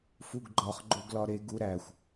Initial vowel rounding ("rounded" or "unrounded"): rounded